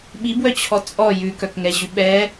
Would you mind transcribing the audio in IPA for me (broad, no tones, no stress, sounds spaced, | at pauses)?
ɓ i b w œ t͡ɕʰ ɔ t͡sʼ ɔ j ʉ k œ k ŋ ɛ ʑ ʉ ɓ ɛ